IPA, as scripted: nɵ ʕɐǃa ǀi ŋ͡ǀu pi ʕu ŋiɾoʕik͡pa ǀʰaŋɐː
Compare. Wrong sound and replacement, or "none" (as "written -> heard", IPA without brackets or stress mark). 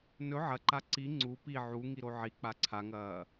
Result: none